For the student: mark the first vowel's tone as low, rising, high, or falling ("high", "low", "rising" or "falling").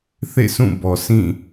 falling